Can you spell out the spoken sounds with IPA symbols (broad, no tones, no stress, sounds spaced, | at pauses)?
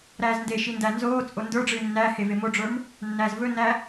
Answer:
ɾ æː z n d e ʃ i n d æ n z oː t͡sʼ o n d ə˞ ɖ͡ʐ ɨː nː æ h e v e m o ɖ͡ʐ ə˞ m | nː æː z v ɵ nː æ